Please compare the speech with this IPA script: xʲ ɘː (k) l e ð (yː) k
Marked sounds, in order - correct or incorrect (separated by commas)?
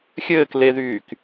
correct, correct